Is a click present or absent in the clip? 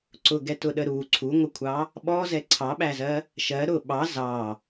present